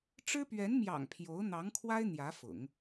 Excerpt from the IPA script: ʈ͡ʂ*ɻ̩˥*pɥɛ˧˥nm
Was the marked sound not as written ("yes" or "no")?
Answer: no